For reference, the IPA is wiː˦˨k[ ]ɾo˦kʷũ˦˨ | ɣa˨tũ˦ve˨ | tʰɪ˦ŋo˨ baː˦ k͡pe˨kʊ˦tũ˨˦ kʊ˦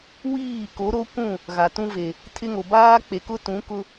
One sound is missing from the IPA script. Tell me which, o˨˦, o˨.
o˨˦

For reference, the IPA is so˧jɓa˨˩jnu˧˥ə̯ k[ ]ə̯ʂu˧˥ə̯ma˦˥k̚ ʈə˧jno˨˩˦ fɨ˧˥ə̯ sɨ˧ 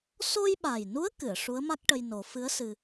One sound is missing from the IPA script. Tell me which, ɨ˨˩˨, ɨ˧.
ɨ˨˩˨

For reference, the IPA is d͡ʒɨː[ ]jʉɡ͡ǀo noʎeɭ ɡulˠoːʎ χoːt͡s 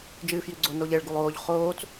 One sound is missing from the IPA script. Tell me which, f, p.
f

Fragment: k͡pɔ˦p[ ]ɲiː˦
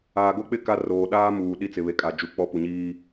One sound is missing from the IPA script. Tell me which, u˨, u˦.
u˨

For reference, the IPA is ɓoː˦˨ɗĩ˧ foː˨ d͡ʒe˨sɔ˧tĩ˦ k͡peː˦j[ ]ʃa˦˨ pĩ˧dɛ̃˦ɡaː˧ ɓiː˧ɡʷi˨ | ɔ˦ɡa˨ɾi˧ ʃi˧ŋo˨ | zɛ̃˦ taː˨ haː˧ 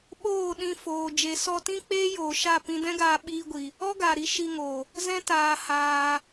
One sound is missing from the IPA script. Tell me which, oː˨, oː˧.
oː˨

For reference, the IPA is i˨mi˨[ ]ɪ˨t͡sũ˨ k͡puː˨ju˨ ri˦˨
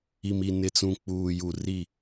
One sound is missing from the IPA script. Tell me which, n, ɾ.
n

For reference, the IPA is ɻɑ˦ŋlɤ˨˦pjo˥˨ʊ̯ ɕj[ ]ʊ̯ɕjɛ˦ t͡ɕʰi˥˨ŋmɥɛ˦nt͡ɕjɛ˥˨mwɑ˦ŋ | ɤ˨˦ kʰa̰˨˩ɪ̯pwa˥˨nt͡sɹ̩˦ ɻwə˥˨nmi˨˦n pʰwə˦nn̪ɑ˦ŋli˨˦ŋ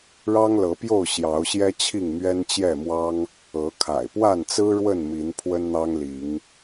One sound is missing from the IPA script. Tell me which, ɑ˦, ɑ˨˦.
ɑ˨˦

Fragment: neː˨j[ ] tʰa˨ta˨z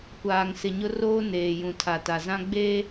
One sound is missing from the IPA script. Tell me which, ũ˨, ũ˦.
ũ˨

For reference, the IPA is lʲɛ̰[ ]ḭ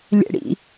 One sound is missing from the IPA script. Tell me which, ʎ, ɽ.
ɽ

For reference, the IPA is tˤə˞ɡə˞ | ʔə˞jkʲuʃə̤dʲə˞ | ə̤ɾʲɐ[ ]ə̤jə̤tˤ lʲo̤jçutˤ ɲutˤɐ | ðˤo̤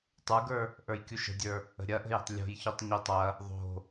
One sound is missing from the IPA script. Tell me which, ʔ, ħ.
ʔ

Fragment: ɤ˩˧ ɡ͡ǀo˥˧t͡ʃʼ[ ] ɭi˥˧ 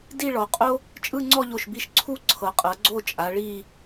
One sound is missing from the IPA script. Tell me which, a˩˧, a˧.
a˩˧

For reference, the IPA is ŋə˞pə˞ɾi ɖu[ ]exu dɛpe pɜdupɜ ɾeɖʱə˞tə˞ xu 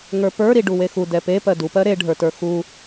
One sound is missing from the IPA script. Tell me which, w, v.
w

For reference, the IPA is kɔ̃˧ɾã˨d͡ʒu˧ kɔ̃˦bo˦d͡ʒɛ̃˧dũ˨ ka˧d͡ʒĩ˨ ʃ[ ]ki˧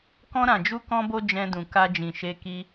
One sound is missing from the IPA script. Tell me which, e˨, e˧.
e˧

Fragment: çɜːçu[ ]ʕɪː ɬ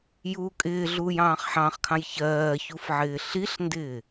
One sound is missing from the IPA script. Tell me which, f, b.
f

